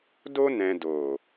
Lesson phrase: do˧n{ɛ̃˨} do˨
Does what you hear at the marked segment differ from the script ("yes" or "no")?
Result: no